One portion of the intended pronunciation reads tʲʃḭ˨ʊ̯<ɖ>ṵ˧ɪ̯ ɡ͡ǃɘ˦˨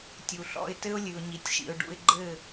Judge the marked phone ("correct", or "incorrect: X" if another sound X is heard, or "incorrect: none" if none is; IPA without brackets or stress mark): correct